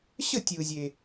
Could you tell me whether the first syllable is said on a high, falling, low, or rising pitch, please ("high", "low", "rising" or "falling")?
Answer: falling